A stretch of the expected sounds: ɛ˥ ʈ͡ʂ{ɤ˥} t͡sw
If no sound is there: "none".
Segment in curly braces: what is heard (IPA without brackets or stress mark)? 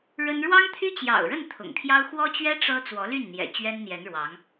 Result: ɤ˥